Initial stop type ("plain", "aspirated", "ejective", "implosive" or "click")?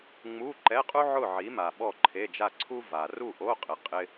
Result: click